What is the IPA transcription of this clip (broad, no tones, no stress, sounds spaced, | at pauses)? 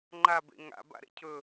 ŋ͡ǃ a b ḛ ŋ a̰ b a̰ ɾ ḛ cʰ ɵ